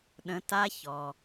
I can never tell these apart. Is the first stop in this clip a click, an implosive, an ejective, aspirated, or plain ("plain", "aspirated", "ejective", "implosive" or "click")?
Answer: implosive